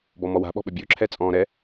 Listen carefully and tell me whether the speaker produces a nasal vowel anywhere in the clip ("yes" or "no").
yes